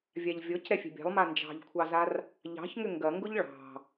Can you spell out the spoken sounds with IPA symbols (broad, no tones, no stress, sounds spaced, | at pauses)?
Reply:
vʲ a ʎ vʲ ɔ c ɾ ɛ fʲ ɛ̤ bʲ ɑ̤ lˠ m a n d͡ʒ ɑ̤ ʎ kʷʰ ɑ z a r | ʎ ɑ̤ ç ŋ ʏ ŋ ɡ ɐ ŋ ɡ ʊ ʎ ɭ ɑ̤